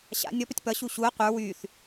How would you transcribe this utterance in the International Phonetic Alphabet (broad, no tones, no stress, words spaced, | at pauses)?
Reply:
ɕa̰ nʲɔpətʲ pʌɕu ɕuɐ̯ qʷə˞ wyθ